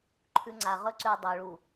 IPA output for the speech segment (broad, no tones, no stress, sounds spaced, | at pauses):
ǃʰ ʉ ŋ͡ǀ a ʁ ɵ ǀ ʉ dˤ ɵ ɭ u